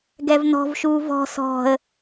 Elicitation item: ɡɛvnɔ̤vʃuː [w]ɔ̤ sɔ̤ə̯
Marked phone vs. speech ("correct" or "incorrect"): incorrect